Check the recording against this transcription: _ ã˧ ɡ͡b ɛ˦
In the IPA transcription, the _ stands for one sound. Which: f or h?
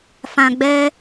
f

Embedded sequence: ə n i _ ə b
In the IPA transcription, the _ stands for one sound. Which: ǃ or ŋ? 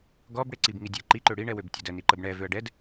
ǃ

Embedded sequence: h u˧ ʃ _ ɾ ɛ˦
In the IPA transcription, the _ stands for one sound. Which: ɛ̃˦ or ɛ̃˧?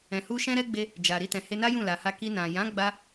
ɛ̃˦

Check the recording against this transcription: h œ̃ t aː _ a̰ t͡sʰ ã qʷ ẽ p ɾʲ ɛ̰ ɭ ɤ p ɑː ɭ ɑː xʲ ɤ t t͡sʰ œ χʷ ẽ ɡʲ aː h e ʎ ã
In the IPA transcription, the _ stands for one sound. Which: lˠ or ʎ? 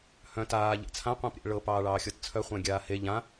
ʎ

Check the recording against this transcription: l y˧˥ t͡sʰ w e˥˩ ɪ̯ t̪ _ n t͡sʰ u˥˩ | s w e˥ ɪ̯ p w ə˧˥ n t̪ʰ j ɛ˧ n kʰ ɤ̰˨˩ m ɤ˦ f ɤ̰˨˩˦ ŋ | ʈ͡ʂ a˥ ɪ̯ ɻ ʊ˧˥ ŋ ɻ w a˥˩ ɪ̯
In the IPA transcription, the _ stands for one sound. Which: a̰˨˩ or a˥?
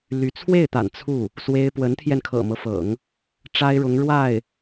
a̰˨˩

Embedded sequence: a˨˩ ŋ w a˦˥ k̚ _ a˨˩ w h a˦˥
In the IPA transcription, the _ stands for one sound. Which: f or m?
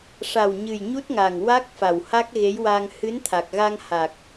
f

